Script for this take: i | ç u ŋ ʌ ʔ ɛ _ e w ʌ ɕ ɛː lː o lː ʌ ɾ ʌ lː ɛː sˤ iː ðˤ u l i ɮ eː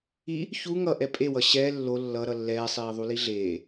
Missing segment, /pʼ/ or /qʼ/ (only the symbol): pʼ